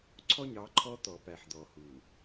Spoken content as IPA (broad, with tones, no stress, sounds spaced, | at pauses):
ǀʰ ɔ˦ ɲ ɑ˨˦ ǃʰ ɔ˦ t̪ ɔ˨ p æ˨ ħ d̪ ɔ˨ h u˨